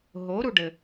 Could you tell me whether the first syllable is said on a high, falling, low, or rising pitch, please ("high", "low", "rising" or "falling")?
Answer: rising